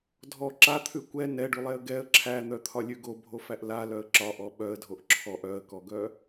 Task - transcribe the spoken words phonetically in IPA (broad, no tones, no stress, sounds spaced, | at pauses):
dʱ ɔ ǁ a t̪ʰ ʉ kʷ ɛ n ɛ ɖ ʉ lˠ ɛ ə̯ ɡ ɛ ə̯ ǁʰ æ n̪ œ t̪ʰ ɒ lʲ ʉ ɡ o bʱ o f æ ʔ l a l œ ə̯ ǁ ɒ ʔ ɔ ɓ œ ə̯ dʱ o ʔ ǁʰ ɔ ʔ œ ə̯ k ɔ ɡ œ